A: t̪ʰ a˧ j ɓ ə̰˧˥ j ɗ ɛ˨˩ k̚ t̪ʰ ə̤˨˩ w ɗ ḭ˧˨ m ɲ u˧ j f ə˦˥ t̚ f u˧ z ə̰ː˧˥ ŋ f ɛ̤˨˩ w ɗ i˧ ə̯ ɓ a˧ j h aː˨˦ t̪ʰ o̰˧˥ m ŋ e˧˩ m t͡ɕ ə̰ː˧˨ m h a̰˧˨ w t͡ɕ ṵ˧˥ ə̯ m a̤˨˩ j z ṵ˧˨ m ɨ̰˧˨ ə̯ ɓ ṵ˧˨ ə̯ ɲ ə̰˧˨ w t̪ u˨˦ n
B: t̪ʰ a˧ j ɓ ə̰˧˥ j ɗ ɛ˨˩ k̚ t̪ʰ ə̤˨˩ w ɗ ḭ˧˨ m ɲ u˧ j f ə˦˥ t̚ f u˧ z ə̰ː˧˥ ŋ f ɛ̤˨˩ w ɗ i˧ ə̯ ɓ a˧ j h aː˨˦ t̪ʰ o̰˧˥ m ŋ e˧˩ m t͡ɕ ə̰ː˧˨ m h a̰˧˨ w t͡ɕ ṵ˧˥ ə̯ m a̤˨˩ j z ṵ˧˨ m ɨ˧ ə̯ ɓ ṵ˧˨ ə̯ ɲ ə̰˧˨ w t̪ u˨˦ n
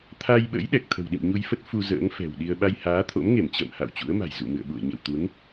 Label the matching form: A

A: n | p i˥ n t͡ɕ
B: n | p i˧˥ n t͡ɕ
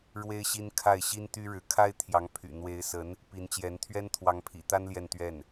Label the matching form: B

